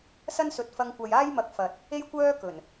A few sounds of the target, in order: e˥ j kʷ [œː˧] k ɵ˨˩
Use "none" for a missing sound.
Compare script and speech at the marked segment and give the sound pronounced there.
œː˥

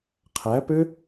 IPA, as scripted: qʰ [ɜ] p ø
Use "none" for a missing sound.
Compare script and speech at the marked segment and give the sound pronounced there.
æ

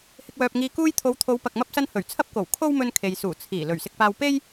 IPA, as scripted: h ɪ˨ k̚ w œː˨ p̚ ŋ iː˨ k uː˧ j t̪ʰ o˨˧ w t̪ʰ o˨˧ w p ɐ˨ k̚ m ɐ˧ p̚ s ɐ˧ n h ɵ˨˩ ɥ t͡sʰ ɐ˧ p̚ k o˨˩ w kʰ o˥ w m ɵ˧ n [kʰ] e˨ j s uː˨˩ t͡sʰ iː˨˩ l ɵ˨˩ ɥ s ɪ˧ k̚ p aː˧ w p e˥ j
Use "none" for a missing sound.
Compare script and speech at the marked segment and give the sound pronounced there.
kʰ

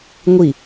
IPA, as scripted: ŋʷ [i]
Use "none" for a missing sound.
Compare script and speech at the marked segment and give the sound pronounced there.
i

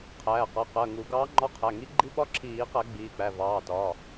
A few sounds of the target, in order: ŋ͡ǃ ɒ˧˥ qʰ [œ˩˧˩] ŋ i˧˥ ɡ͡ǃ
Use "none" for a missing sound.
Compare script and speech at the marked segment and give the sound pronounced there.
æ˩˧˩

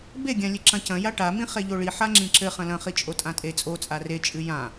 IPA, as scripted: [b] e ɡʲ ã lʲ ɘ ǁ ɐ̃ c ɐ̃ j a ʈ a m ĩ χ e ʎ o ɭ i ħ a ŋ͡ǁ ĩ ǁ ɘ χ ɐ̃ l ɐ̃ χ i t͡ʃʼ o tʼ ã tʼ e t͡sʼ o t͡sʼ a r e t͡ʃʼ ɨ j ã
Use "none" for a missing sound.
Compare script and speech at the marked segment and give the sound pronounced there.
b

